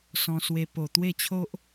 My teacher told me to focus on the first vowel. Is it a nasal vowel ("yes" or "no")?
yes